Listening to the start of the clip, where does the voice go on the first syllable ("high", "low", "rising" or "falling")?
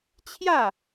falling